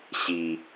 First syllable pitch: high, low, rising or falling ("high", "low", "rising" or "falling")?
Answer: low